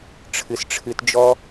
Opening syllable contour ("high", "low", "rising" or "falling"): low